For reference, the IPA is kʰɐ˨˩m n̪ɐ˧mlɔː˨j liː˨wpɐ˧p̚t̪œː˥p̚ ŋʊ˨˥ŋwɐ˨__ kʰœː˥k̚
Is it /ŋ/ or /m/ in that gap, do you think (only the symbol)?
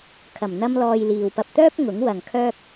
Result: ŋ